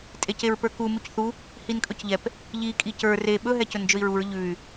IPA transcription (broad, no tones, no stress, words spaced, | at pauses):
tʼeceɹpə˞ku mucθu | hinkʼɵcʎɛp | ʎi kʼicə˞ re ɓɵ ɦɛcɵnd͡ʒɵi̯ɹuɹ ʎʉy̯